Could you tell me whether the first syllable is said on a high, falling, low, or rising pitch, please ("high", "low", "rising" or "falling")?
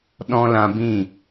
high